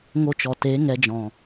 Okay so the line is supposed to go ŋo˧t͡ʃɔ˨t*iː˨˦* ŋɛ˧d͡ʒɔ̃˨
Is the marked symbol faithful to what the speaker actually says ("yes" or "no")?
no